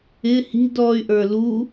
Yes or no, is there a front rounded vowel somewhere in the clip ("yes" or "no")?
yes